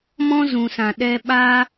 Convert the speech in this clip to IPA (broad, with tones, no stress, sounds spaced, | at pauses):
m ɔ̃˦ z ũ˨ s ã˨ ɗ ɛ˧ ɓ aː˧